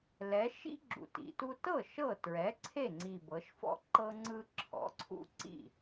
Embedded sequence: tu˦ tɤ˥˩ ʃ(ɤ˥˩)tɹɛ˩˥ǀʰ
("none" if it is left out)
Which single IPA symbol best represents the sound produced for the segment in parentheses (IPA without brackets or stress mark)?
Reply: ɤ˥˩